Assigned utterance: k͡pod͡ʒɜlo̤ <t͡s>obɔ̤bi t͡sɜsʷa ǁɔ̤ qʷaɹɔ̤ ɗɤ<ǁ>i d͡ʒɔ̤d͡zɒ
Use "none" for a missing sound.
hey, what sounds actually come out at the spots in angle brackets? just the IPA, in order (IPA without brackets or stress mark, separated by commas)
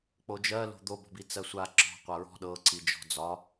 d̪, ǀ